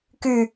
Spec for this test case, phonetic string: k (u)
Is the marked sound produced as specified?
no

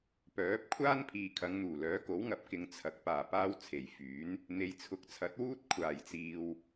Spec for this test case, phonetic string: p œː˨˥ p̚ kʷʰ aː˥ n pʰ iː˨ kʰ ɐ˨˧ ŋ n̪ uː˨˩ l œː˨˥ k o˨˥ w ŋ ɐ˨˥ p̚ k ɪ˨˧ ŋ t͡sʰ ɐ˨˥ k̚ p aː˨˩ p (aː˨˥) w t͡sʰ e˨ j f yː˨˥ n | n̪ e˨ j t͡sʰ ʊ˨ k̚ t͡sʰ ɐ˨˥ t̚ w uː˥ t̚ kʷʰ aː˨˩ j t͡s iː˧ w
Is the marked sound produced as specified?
no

